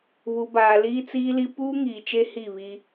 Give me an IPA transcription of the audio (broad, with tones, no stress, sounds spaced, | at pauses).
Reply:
β u˨ b aː˨ l iː˦ t͡s iː˦ l i˦ p uː˦ ŋ iː˨ t͡ʃ e˦ h i˦˨ β i˦